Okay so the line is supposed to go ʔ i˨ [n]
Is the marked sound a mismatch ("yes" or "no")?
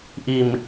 yes